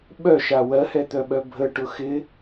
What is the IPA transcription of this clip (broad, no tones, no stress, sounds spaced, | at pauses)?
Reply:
ɓ œ ʃ a w ɜ h ɛ t̪ œ ɓ œ bʱ ə ʈ ʊ x ɪ